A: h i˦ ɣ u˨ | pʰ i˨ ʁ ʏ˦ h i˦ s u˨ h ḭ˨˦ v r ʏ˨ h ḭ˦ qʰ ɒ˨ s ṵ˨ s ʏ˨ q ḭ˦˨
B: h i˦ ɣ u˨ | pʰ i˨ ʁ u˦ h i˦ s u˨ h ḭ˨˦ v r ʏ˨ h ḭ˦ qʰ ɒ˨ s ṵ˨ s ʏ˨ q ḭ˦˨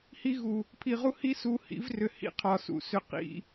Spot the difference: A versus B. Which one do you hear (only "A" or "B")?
B